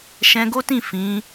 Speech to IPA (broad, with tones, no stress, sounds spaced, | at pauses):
ʃ ɛ̃˧ ɡ o˦ t ĩ˦˨ f ĩ˨˦